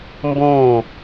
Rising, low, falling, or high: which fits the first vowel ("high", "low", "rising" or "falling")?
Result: falling